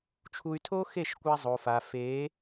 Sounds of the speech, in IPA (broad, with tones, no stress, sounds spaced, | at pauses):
t͡ʃʰ u˧ y̯ tʰ o˦ x e˦˨ ʃ kʷ a˧ zˤ o˨ f a˨ f e˨˦